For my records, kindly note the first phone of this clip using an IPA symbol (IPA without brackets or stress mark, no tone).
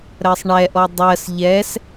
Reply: ɾ